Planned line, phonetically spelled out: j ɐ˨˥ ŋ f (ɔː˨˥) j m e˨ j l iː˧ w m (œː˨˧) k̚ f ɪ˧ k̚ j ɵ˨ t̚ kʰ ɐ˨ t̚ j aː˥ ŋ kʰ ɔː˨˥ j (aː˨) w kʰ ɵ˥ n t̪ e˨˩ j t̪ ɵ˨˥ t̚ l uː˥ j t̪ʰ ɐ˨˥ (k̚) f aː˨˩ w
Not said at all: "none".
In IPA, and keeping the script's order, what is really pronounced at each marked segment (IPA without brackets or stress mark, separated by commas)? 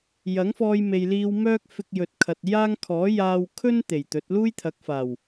ɔː˧, œː˥, aː˧, k̚